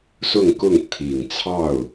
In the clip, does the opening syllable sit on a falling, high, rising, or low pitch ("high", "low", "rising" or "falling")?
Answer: falling